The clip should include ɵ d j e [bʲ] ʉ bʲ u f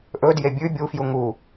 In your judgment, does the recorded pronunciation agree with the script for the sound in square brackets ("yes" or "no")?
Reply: yes